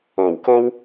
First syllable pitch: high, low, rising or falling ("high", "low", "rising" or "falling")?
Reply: low